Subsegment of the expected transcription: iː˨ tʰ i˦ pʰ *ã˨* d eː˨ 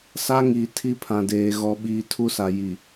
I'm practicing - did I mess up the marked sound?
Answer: no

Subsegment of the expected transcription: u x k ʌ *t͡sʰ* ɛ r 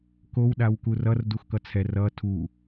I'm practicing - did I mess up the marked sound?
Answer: no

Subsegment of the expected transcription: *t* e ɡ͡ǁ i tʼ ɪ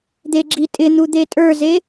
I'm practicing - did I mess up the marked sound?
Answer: yes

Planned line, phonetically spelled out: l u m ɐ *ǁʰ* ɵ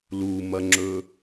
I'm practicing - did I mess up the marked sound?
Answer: yes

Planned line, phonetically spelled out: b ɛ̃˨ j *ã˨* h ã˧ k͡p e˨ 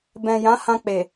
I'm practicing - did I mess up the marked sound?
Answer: yes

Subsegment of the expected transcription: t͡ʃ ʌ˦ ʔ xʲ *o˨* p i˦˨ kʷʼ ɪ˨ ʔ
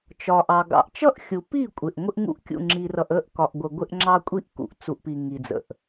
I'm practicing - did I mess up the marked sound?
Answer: yes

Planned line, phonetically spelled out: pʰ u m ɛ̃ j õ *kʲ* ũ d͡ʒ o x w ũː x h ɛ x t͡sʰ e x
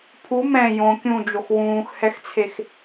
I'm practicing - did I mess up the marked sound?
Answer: no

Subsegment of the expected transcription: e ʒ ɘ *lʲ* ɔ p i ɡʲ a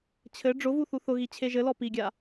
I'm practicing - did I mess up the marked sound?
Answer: yes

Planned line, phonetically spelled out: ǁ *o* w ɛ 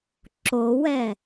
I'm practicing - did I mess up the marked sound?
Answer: no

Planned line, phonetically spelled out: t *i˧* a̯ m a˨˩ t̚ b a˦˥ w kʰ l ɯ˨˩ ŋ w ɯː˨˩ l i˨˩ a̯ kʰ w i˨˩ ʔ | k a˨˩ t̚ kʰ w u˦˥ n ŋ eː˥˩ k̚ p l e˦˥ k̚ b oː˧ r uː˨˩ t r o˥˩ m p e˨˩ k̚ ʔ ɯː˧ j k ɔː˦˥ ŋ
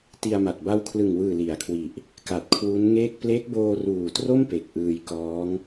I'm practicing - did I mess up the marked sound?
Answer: no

